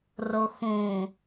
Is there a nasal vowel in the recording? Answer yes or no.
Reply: yes